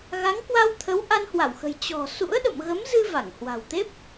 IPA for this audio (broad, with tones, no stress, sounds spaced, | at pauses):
ɣ a˨˦ ŋ k w a˧ w t̪ʰ ə˨˦ w ʔ a˧ n h w a˧˩ w x ə̤˨˩ j t͡ɕ ɔ̤˨˩ s ṵ˧˥ ə̯ ɗ ə̰˧˨ m ɣ ə˨˦ m z ɨ˧ v a˧˩ ŋ h w a̤˨˩ w t̪ e˦˥ p̚